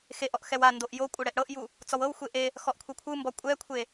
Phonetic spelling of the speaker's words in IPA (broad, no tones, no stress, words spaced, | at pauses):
xeʔɔʔ xɛwandoʔ jo kʷʼɤɽɛʔɽɤʔju | t͡sɔwɤwxʷe ʔe | xɔʔkʷʰekʷʰɯmbɔ kʷʼɛkʷʰe